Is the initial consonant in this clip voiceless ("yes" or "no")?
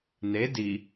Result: no